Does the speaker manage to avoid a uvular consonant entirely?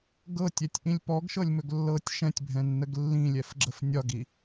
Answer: yes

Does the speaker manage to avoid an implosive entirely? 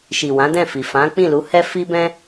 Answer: yes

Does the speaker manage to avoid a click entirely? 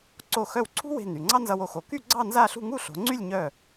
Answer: no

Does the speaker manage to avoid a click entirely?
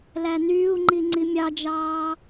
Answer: no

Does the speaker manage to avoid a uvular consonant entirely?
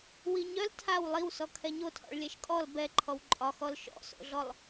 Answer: yes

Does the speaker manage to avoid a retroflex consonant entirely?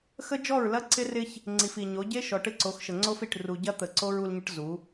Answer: no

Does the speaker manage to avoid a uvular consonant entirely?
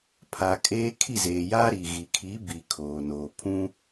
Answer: yes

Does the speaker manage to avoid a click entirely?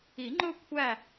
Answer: no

